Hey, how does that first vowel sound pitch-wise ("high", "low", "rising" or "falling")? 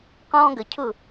high